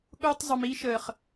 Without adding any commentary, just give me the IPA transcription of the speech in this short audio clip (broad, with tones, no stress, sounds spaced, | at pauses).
ɠ ʊː˧ tˤ zˤ ʊ˨ m i˧ ʃ əː˨ χ